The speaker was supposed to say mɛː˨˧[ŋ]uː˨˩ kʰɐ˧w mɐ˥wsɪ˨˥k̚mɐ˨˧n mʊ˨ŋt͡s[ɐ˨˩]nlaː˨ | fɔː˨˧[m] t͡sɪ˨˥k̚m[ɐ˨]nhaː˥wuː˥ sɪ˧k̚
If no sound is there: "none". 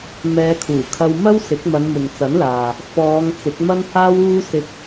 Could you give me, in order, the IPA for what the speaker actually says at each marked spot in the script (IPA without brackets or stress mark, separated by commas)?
kʰ, ɐ˨˥, ŋ, ɐ˥